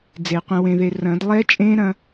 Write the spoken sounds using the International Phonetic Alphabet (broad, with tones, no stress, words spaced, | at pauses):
d͡ze˨˩˦qʷɛ̃˧wẽ˧ðe˧ rɐ̃˨˩˦dlˠɛ˦˥t͡ʃʼẽ˦˥ɾɐ̃˧